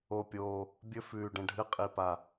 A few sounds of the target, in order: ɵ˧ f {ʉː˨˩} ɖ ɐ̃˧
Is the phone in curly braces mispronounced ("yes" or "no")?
no